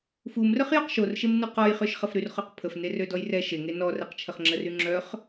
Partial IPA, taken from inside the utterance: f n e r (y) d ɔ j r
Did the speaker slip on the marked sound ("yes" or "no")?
yes